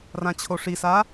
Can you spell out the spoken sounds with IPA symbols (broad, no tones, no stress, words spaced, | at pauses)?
rãt͡ɕʰoʂisa